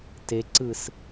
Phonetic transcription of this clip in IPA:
t e ǀ ɯ s

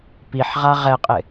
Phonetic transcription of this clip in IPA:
p i ħ ʁ a ʁ ɛ qʼ ɪ

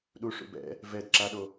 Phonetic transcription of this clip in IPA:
ɗ u ʂ ṵ b ɛ̰ | v ɛ d ǁ a ɗ o

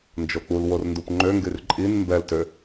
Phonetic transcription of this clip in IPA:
n d͡ʒ o k͡p u l w o r n d u p ŋ͡ǃ ø ŋ ɡ y r ǃʼ i n m b ɛ l t ø

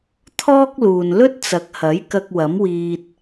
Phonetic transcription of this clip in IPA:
t̪ʰ ɔː˥ k̚ l uː˨ n l ɵ˥ t̚ t͡s ɐ˨˥ k̚ h ɐ˨˥ j k ɐ˧ k̚ w ɐ˨˥ m w iː˧ t̚

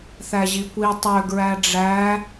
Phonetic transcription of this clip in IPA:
θ æ ʑ i kʷ i tˤ ø ɡ ɹ æ ɖ͡ʐ æ

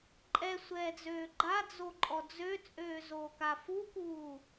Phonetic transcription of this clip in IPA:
ǃʼ ɛ sʷ ɛː d͡z øː ɡ͡ǃ a d͡z o ǃʼ ɔ d͡z ø t͡sʼ øː z oː k a f u k uː

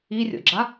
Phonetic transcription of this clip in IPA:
i rʲ o̰ ɡ͡ǁ a

